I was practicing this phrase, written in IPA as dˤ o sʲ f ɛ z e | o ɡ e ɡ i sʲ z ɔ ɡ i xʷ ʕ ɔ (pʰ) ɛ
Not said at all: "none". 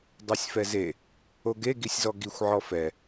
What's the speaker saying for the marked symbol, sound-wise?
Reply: f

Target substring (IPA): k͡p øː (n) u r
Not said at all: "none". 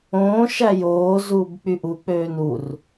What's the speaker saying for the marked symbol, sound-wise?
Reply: n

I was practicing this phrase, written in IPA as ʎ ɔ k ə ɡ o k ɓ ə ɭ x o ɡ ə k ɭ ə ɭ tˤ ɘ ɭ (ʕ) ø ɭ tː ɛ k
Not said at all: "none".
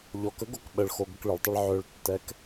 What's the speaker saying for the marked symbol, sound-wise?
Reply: ʕ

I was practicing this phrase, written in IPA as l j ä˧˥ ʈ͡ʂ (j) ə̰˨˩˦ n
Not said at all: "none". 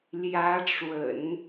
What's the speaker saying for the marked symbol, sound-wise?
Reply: w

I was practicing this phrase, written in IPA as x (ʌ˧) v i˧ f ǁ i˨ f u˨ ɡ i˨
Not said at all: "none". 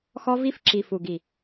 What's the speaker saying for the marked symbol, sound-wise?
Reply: ɔ˧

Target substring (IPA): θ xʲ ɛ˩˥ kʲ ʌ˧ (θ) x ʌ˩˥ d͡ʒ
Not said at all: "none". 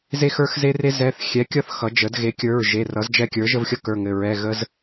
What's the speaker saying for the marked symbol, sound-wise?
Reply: θ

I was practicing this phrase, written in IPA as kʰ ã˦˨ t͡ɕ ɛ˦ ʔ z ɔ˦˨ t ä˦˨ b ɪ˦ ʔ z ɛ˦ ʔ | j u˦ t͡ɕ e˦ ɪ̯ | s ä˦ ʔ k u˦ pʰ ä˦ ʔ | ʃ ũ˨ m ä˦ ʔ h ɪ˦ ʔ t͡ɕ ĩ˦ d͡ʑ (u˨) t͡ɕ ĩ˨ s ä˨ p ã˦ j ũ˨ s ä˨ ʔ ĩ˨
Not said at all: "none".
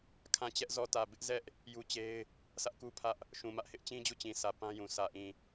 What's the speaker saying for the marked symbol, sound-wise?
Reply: u˦˨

